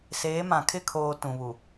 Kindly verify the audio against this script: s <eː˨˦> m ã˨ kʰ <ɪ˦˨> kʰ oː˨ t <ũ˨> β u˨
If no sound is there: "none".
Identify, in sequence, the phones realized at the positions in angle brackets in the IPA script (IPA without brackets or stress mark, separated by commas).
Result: eː˨˦, ɪ˦˨, ũ˨